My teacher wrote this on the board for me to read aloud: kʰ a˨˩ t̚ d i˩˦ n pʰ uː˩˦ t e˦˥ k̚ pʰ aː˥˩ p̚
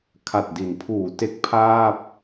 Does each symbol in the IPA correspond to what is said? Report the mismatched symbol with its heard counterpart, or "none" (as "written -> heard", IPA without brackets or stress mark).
none